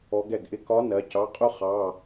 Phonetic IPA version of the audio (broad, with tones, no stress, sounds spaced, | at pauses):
ɔ˧˥ ɡ ɛ˥˩ ɡ ʔ ɪ˥ k ɒ˧˥ n ɜ˩˧ c ɑ˩˧˩ qʼ ʊ˥ χ ɑ˩˧˩